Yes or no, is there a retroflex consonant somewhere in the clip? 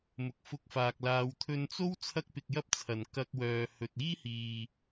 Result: no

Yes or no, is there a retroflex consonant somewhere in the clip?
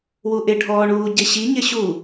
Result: yes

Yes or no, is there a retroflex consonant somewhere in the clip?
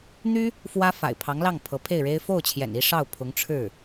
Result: yes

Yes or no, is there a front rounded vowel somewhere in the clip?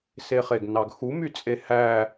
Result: yes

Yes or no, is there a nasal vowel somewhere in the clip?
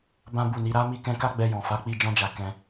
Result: yes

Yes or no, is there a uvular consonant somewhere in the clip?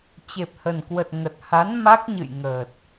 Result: no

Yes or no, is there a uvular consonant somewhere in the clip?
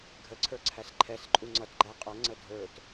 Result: yes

